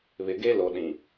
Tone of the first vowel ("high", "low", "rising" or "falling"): low